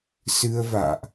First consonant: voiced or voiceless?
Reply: voiceless